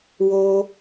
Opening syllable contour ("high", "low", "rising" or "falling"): high